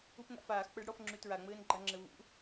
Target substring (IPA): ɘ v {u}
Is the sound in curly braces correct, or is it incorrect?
incorrect